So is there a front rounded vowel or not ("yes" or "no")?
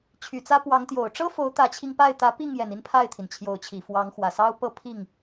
yes